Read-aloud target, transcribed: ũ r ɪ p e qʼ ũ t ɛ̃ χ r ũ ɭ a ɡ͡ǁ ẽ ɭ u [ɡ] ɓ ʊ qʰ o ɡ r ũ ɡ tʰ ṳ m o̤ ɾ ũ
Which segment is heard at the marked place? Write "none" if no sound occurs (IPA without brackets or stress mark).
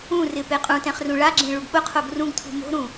ɡ